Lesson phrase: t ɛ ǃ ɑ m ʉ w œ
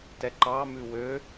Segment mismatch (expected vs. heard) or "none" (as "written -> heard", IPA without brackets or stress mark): œ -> ø